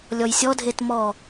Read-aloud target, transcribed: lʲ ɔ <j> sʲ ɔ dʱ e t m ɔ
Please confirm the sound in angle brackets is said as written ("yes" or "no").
yes